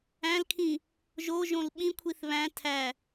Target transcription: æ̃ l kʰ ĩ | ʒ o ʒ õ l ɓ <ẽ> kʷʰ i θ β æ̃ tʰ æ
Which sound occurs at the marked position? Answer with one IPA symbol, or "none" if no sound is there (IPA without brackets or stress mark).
ĩ